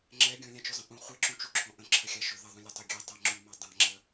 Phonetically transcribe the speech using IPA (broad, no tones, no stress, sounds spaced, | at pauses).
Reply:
ŋ͡ǁ ɛ ɡʲ ɔ̃ lʲ ã t͡ʃ ɵ zˤ ə̃ ʔ ũ χʷ ɛ ǁ ũ t͡ʃ u ǁʰ ɔ̃ ʔ ə̃ ǁʰ ə xʲ a ʃ ɵ ð ə ðˤ ũ lʲ ə tˤ ɵ ɡʲ ɛ tˤ ɛ ŋ͡ǁ u m a dˤ ã ŋ͡ǁ ə